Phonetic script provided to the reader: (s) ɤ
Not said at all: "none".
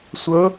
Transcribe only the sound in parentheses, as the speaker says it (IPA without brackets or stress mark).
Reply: sʷ